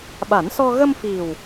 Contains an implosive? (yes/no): yes